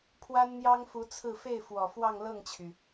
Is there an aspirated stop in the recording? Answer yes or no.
yes